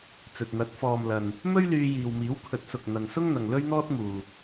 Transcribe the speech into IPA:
t͡s ɵ˨ t̚ n̪ ɐ˨˥ t̚ f ɔː˨ m l ɐ˨ n | m ɵ˥ ɥ l yː˧ j iː˨ w m iː˨˥ w kʰ ɵ˨˥ t̚ s ʊ˨ k̚ n̪ ɐ˨ n s ʊ˥ ŋ n̪ ɐ˨ ŋ l ɵ˥ ɥ n̪ ɔː˥ t̚ m uː˨

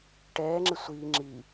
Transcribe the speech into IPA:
ʈ ɛː ŋ͡ǁ ɪ sʷ iː ŋ͡ǁ i

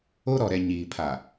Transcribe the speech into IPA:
o˦ ɾ ɔ˨ ɾ ɛ˨ ɲ iː˨ pʰ a˨

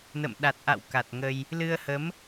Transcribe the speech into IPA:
n ə̰˧˨ m ɗ a˨˩ t̚ ʔ a̰˧˨ w k a˨˩ t̚ ŋ ə˧ j | l ɨ˧ ə̯ h ə˨˦ m

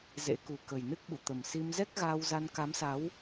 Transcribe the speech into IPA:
z ḛ˧˥ k u˨˩ k ə˨˩ j n ɨ˦˥ k̚ ɓ ṵ˧˨ t̪ ə˨˩ m s i˧ m z ɛ˦˥ k̚ ɣ aː˧ w z a˧ n k a˨˦ m s a˨˦ w

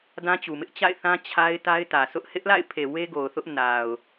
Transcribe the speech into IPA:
d ã˦ t͡ɕ u˨ m ɪ˦ ʔ t͡ɕ a̰˦˨ ɪ̯ θ ã˦ t͡ɕʰ a˦ ɪ̯ t a˦ ɪ̯ t ä˨ sʰ ʊ˦ ʔ h ɪ˦ ʔ l a̰˦˨ ɪ̯ pʰ e˨ w e˦ ɡ o˨ ʊ̯ θ ʊ˦ ʔ n a˨ ʊ̯

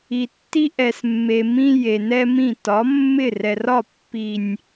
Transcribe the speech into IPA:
i˨ tː i˦ ʔ ɛ˨ s mː e˨ m ĩ˦ j e˨ n ɛ˦ m ĩ˦˨ t ɒ˨˦ mː ɪ˦˨ r ɛ˨ r ɒ˦˨ pː i˨ nʲ

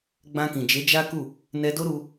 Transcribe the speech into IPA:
ɡ͡b ã˧ k ĩ˨ d͡ʒ e˨˦ d͡ʒ a˦ k u˦˨ | n ɛ˧ d o˦ ɾ u˧

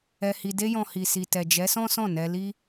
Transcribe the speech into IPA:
ɛ˧ h i˧ d e˦ j ɔ̃˧ h i˨ s i˨ t ɛ˨ d͡ʒ ɛ˨˦ s ɔ̃˦ s ɔ̃˦˨ n ɛ˧ l i˦

